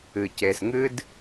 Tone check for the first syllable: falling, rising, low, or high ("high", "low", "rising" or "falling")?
low